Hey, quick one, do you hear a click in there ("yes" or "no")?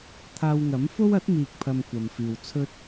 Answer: no